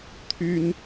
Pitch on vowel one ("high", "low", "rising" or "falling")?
high